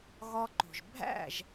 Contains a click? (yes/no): yes